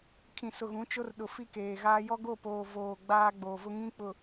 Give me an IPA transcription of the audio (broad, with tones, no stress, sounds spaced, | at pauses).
kʰ ĩ˨ s ʊ˨ ɣ ũ˨˦ t͡ʃ o˦ r ɗ ʊ˨ f i˦ k eː˨ ɣ aː˦ j ɔ˦ ɡ o˦˨ p oː˨ v oː˨ ɡ͡b aː˦ ɡ͡b oː˨ v ʊ˦ ŋ ĩ˦ k͡p ʊ˨